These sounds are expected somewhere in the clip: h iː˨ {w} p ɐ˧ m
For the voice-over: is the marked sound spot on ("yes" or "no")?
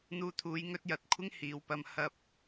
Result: yes